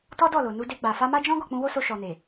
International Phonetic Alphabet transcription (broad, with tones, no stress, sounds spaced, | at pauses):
t ɔ˦ d ɔ˦˨ l o˨ n u˧ d e˧ ɡ͡b a˨ f a˧ m a˦ d͡ʒ ɔ̃˦ ɡ ɔ˦˨ k͡p ũ˧ w o˦ s o˧ ʃ ɔ˨ n e˨